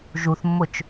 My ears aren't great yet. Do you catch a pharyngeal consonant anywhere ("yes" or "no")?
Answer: no